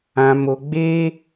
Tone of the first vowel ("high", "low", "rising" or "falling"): low